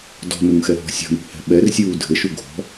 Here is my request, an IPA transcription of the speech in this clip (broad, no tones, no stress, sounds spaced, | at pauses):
d ɔ̤ n u ŋ x ɛ ɦ ɔ̤ sʲ ɔ̤ n ṳ h ɛ̤ ɓ ɛ r sʲ uː dʱ ɘ ʃ u ɡʱ ɔ̤